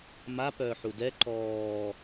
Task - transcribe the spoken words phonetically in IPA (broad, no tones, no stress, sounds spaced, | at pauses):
m a p œː ħ u d ɛ ǃ ɔː